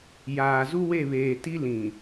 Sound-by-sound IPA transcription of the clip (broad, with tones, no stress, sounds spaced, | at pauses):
j aː˨ z u˦ w e˦˨ β eː˨ t i˦ l ĩ˨